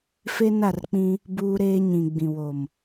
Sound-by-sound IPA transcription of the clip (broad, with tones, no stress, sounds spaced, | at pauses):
f e˦ n a˦˨ r k͡p ĩ˦ | b uː˦ ɾ eː˦ ɲ ĩ˨ ɡ͡b ĩ˨ w o˨ m